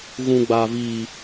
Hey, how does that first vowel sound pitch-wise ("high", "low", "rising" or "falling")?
low